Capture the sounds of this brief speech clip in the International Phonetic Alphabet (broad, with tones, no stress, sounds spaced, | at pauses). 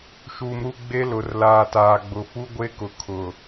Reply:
ʃ uː˨ m ɾ u˦˨ ɡ͡b e˦ l ʊ˨ r l aː˨ t aː˨ ɡ͡b ʊ˨ f u˦ ɡʷ e˦ k ʊ˨ kʰ ʊ˨